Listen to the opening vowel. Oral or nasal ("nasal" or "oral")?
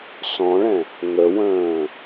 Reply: nasal